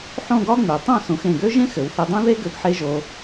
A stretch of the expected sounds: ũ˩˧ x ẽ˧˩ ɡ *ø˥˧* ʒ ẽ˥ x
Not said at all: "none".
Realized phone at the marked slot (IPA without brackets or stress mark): ø˥